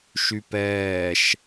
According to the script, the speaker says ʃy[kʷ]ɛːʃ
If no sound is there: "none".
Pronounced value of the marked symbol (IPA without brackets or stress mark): p